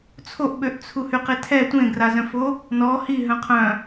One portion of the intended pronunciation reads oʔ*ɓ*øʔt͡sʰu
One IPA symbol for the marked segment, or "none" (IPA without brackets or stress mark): ɓ